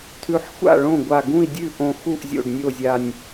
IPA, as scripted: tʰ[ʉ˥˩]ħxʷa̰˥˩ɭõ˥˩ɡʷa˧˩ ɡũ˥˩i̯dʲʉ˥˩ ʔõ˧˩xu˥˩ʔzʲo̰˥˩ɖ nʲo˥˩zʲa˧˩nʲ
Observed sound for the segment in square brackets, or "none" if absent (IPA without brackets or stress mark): ʉ˧˩